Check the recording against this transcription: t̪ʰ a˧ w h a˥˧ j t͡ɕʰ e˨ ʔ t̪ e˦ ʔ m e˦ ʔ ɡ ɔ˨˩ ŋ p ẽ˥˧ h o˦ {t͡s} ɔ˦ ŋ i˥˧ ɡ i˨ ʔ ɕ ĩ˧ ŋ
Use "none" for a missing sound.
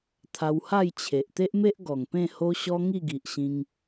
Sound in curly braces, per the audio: ɕ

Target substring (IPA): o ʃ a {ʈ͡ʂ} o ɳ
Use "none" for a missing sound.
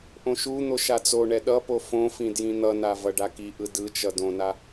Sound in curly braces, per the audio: t͡s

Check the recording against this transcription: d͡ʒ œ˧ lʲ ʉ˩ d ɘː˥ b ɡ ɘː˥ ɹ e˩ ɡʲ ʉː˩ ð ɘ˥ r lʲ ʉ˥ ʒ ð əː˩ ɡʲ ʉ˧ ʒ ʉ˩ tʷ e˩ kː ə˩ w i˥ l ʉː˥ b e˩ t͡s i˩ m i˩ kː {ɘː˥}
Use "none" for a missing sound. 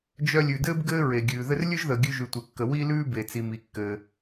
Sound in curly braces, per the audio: ɘː˩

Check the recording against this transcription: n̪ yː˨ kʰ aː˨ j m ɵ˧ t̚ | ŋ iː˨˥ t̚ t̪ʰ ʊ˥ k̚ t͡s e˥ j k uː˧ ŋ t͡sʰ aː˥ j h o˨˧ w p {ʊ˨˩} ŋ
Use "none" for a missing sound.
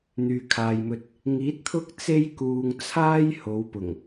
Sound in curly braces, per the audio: ʊ˨˩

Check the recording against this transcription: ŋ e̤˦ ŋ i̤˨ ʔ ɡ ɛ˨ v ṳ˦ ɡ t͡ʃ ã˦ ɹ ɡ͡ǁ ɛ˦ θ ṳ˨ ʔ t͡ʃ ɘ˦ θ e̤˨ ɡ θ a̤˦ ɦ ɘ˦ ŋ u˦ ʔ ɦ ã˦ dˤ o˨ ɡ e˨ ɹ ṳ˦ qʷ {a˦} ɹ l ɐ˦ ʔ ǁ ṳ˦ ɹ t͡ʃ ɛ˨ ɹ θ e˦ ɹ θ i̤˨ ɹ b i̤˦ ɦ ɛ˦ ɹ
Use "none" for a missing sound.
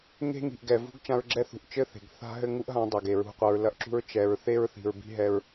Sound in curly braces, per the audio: ɐ˦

